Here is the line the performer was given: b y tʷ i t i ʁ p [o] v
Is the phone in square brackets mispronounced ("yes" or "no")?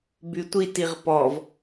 yes